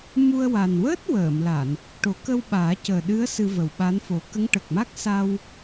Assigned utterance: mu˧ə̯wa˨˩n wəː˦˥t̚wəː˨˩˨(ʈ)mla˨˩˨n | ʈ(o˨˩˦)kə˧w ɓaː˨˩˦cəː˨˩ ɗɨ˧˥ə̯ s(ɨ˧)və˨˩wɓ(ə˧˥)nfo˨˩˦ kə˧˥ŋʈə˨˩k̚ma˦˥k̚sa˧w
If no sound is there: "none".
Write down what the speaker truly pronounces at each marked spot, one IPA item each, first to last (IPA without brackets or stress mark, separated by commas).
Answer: none, o˨˩˦, ɨ˧, a˧˥